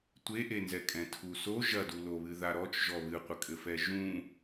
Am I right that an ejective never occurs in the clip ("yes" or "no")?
no